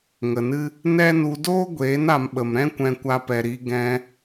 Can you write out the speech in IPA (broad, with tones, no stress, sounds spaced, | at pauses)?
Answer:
ŋ ə˨ n ɨ˦ | n ɛ˦ n u˧ d oː˦ ɡʷ eː˨˦ n a˨ m ɓ ə˨ m ɾ ɛ̃˦ kʷ ɛ̃˧ kʷ a˧ p ɛ˨ ɾ i˧ ɡ ɛ̃˧